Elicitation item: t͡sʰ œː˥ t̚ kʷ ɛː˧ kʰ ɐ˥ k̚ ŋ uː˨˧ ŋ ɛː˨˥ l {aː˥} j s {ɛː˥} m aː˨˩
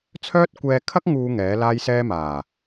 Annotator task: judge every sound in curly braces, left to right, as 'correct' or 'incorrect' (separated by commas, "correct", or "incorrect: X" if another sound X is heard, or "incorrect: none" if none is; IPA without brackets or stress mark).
correct, correct